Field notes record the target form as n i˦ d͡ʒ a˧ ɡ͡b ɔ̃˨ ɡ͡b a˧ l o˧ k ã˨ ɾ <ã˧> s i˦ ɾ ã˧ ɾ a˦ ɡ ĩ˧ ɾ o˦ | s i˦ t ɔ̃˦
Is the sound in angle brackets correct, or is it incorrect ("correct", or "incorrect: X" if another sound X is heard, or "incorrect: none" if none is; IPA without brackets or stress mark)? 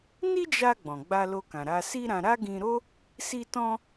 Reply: incorrect: a˧